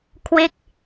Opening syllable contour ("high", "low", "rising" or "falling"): falling